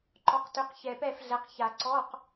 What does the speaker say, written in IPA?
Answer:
ǃ ɔ˨˦ q t ʏ˨˦ q ç ɛ˨˩ p ɛ˥˩ f ɮ ɛ˨˦ q ç a˨˩˦ ǀ ɔ˧˥˧ q

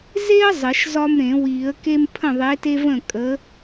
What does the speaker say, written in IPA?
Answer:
z e˦ ə̯ zˤ ə˨˩˦ ʃ z ɒ˦ m ɾ ẽ˨˩˦ w i˨˩˦ ə̯ k e˦ m pʰ ə̃˥˩ ðˤ e˨˥ t e˦ v ə̃˥˩ kʼ ə˨˥

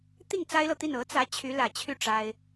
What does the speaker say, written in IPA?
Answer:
t̪ i˥˩ ŋ t͡s a˥ ɪ̯ l ɤ˨ t̪ i˥˩ n ɤ˧˥ t͡s ä˧˥ t͡ɕʰ y˧˥ l ä˨˩ t͡ɕʰ y˥˩ ʈ͡ʂ a˥ ɪ̯

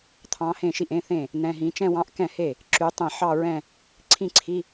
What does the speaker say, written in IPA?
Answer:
t̪ʰ ɑ̃˧˥ h ẽ˥˩ ʃ i˥˩ ʔ ẽ˧˥˧ θ ẽ˥˩ | n̪ ɛ̃˧˥˧ ɦ ĩ˧˥ t͡ʃ ɛ̃˥˧ w ɑ̃˧˥˧ ʔ k ɛ̃˥˩ h e˥˩ | ǁ y˧˥ tˤ ẽ˥˩ ħ ɑ˥˧ ɹ ɛ̃˥˧ | ǀʰ ĩ˥˩ ǀʰ i˧˥˧

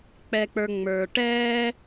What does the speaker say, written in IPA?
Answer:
k͡p ɛ˨ k͡p ə˞˨ ŋ͡m ə˞˨ ʈ ɛː˥

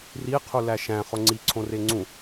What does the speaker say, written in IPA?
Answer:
r i qʰ u l æ ʃ æ̃ χ o ŋ͡ǀ i ǀʰ õ r e ŋ͡ǀ ũ

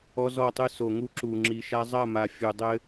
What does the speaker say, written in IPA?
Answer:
ɔ˦ z ɔ˦˨ tˤ ɨ˦ s o˨ ŋ u˦ ǁ u˨ ŋ͡ǁ i˨ ʃ a˦ zˤ ɐ˦˨ m a˨ fʲ u˨ dˤ ɘ˦

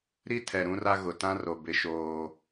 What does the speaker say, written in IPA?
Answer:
ɾ i˦ tʰ ɛ˨ ɾ ũ˦ r a˦ ɣ ʊ˨ t ã˦ r o˨ b ɪ˦ ʃ oː˦

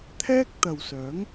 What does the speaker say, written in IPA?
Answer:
t̪ʰ ɛː˥ k̚ t̪ ɐ˨ w s œː˨˥ ŋ

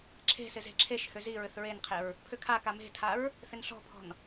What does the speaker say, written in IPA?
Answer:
ǁʰ e̤ s ɪ z e̤ ǁʰ e ʃ h ʏ z i ɹ ʏ θ ɹ e n qʰ e ɹ | pʰ ʏ kʰ a k a m e̤ tʰ a ɹ | θ ɪ n ɬ ɔ̤ pʰ ɔ̤ n

